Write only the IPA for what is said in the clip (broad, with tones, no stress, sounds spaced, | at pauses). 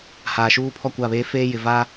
h aː˨ ʃ uː˦ pʰ ɔ˦˨ kʷ a˦˨ β eː˦ f eː˦ j ɪ˨ v a˦